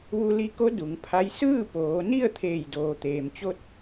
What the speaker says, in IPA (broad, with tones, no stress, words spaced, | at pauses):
ʋu˧li˧ko˧˥ du˩˧ŋpʰa˧˥j sɯː˥˨ poː˩˧ni˥˨ə̯ t̪ʰeː˧˩jdoː˩t̪eː˩mt͡ɕo˧t̚